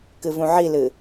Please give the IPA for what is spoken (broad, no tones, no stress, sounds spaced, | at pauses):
k ɨ v ũ ʕ i l ɨ